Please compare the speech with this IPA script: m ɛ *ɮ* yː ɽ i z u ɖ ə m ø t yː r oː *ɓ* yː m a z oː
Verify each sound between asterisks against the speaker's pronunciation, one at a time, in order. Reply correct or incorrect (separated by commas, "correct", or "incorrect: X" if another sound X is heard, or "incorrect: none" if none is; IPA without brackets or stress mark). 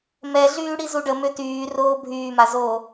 correct, incorrect: bʱ